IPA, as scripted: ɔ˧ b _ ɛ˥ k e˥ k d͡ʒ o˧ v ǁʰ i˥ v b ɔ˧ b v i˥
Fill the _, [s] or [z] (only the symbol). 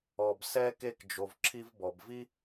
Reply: s